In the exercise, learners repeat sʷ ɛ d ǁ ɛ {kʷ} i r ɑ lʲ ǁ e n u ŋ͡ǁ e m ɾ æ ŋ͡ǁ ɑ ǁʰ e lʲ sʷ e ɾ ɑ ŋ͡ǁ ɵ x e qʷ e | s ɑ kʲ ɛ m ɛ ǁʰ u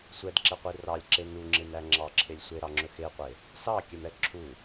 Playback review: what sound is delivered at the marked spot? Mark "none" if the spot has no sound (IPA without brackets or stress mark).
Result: qʷ